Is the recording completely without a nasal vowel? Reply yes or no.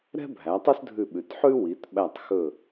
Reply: yes